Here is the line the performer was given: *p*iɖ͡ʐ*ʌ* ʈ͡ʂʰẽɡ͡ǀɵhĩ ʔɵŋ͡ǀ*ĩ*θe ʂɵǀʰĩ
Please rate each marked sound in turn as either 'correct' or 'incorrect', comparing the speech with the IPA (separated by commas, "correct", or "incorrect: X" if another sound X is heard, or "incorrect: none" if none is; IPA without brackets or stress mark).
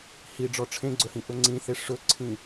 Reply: incorrect: h, incorrect: ɔ, correct